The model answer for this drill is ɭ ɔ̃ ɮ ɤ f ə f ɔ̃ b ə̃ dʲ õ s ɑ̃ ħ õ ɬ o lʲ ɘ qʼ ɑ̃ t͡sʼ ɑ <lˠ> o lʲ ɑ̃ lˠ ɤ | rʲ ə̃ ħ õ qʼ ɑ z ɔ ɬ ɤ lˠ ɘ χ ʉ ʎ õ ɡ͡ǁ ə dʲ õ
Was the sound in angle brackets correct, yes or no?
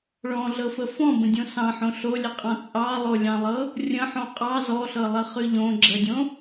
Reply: yes